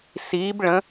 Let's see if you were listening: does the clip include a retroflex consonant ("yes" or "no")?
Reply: yes